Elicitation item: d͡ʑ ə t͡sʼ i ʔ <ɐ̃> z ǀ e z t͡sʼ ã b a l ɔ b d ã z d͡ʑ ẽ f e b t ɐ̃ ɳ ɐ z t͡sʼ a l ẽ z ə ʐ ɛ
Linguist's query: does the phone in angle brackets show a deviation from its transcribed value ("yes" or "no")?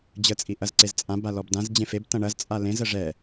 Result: yes